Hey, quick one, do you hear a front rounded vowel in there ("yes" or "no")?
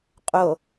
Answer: no